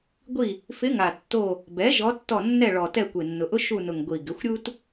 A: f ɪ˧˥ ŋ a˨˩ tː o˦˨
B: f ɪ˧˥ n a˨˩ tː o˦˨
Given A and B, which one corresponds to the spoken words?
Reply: A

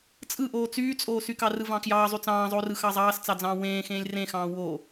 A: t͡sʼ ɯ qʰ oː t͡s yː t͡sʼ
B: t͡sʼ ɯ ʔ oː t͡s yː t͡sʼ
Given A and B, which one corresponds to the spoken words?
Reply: B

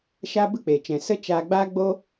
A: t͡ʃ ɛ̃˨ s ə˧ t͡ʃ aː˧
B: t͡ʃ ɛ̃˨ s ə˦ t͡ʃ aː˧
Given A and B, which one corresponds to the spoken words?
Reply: A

